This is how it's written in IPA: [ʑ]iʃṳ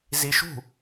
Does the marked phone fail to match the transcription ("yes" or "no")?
yes